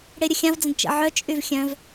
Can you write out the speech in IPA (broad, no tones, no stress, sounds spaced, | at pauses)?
ɽ e ɾʲ ə xʲ ã v d͡z ə̃ d t͡ʃ ə̰ ʕ œ t͡ʃʼ y v xʲ œ̃ v